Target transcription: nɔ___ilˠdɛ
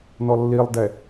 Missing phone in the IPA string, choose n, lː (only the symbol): lː